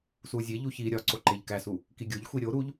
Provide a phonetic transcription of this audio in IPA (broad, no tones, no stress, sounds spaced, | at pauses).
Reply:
s u zʲ e ʎ u ç i ɾʲ ɒ ǀ o ǃ e ʎ k æ s u | k i ɡʲ o ʎ xʷ i ɾʲ o ɾ u ʎ